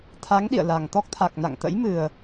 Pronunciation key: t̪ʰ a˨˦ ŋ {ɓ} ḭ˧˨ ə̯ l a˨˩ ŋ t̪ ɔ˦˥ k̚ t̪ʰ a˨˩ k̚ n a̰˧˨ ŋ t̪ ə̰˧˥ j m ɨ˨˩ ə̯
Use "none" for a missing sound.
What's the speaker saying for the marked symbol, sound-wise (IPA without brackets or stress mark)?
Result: ɗ